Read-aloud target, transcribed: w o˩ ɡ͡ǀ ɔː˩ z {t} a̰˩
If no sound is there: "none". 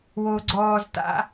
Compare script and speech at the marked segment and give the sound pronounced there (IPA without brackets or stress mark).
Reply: t